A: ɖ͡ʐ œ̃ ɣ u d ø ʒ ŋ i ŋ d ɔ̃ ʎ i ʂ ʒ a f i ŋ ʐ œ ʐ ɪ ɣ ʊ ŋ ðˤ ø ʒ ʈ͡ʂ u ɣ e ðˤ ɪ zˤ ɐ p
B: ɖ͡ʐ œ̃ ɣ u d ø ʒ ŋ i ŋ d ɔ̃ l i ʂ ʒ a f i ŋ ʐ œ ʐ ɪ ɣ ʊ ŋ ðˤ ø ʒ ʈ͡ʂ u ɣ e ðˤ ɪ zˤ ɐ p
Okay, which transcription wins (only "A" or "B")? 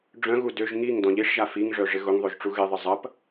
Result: A